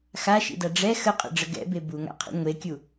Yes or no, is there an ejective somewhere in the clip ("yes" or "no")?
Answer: yes